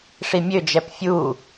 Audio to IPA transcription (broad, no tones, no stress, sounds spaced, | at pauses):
ʂ i mʲ ø d͡ʒ ɛ p fʲ u